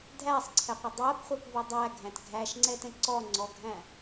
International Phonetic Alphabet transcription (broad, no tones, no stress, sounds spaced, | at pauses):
dʱ æ sˤ ǀʰ ɛ qʷ ɛ dˤ æ p χʷ ɜ p v ʊ dˤ æ ɡʱ æ̃ t ɡʱ æ ʃ ŋ͡ǀ ɛ t ɛ̃ ǀ ɔ ŋ͡ǀ ɔ ɡʱ æ̃